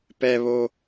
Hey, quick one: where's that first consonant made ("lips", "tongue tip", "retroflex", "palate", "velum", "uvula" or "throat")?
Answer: lips